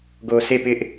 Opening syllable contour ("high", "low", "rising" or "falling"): low